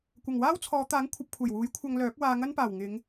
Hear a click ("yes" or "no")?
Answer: no